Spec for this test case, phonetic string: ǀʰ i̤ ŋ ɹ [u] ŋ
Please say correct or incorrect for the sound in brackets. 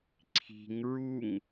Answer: correct